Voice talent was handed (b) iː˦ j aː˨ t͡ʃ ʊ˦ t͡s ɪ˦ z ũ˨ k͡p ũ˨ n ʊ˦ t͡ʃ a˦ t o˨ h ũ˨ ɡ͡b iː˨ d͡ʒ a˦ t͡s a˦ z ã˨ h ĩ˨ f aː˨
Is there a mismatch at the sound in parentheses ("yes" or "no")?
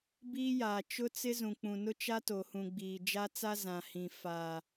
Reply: no